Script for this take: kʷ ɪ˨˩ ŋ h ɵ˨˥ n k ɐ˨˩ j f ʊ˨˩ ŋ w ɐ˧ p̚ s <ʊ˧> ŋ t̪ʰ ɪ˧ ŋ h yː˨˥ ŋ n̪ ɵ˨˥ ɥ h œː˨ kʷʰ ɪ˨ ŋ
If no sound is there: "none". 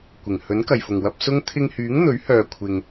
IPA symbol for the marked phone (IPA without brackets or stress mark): ʊ˥